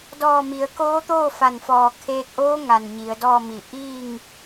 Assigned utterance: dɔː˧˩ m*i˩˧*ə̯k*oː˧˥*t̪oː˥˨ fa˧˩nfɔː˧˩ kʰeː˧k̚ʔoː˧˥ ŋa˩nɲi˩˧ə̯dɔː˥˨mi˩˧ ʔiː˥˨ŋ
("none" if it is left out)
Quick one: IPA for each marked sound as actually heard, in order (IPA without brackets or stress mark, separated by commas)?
i˩˧, oː˧˥